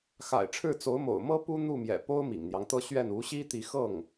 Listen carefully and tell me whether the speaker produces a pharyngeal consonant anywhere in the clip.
no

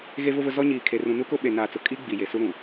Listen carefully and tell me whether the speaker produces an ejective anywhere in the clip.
yes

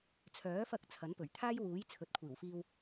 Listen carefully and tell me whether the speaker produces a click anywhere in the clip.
no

